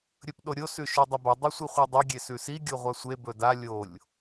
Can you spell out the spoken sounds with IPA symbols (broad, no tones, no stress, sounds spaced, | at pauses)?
ɾʲ ɵ p ɗ o ɾʲ o s ʉ ʃ u dˤ ɐ b ɐ dˤ ɐ sʷ i χʷ a dˤ o ɡʲ e s ʉ s i ɡʲ o ʁʷ a sʷ e b ɵ d a lʲ o lʲ